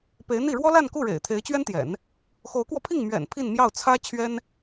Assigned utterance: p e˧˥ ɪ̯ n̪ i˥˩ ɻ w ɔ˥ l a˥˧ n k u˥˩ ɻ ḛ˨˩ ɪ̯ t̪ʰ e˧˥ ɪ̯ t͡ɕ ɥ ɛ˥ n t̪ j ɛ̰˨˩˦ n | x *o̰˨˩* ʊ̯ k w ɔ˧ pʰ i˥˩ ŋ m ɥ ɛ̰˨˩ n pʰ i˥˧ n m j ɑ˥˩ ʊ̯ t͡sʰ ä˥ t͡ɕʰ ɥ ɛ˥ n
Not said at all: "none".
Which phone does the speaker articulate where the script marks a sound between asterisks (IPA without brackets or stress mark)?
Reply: o˧˥